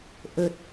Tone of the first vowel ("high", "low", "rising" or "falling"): low